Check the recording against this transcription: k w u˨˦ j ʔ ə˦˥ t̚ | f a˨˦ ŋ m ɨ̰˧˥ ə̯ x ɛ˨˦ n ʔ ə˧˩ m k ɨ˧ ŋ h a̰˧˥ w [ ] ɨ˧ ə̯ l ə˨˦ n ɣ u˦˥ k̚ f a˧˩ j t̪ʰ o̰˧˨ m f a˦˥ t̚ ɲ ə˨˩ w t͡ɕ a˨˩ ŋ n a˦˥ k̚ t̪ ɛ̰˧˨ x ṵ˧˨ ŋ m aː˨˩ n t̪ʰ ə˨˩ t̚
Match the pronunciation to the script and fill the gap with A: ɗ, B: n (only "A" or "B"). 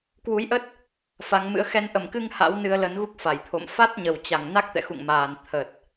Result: B